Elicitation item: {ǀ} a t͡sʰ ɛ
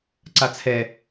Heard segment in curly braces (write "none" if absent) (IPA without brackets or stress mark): ǀ